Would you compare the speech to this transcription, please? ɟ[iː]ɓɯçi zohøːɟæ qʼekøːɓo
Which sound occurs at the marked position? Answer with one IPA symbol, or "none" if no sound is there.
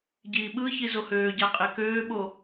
iː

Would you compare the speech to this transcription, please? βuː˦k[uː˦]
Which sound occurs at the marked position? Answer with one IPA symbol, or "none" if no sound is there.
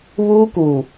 uː˨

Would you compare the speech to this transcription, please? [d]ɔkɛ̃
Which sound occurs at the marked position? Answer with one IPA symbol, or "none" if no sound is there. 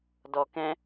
d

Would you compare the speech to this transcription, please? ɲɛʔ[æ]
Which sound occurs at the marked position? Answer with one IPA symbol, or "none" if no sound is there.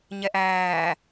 æː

